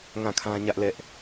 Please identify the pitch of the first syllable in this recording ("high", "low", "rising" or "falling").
falling